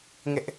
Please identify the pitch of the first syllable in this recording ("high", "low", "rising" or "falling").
high